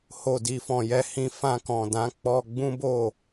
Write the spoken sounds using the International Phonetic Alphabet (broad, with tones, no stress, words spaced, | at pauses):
ho˨ di˨fɔ̃˨ jɛ˧hĩ˧ fã˧kɔ̃˨dã˨˦ k͡pɔ˧ɡ͡bũ˦bo˦˨